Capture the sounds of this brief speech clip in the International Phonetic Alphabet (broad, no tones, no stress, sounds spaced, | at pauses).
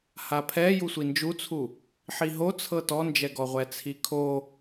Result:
h a pʰ ɛ j u sʷ i n d͡ʒ u t͡sʰ u | ħ i ɦ o t͡sʰ ɤ t ɔ n d͡ʒ ɛ ɡ ɔ ʁʷ ɛ t͡sʰ i kʰ o